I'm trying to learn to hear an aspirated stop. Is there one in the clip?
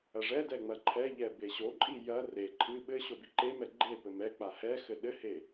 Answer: yes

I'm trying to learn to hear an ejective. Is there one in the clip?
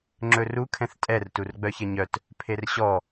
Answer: yes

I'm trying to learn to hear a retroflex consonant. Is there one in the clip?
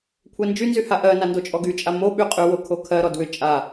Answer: no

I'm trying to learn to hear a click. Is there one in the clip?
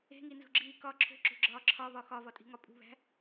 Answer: yes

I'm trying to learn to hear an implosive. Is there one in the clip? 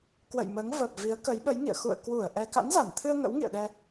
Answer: yes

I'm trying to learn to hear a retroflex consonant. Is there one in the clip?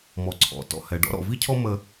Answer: yes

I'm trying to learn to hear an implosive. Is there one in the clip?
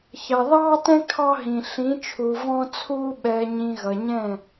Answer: yes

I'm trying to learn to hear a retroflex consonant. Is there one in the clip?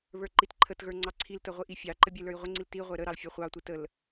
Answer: no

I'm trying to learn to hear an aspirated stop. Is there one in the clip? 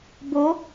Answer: no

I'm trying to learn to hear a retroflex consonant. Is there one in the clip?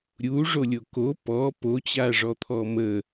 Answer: yes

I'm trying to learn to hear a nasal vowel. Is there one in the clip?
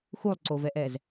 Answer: no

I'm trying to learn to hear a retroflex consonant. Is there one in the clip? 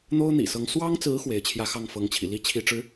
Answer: yes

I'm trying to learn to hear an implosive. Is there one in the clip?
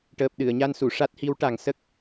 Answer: yes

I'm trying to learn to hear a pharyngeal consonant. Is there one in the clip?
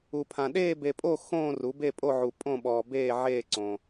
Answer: yes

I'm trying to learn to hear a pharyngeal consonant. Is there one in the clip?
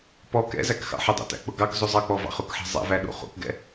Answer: yes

